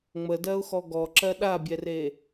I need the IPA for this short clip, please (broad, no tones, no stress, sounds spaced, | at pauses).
ŋ͡m ə d ɜ ʊ̯ x ɔ ɡ ɔ ǁ ɜ ɗ a bʲ ɛ r e